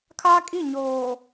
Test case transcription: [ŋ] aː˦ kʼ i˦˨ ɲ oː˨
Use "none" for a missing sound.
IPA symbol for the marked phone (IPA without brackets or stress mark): kʰ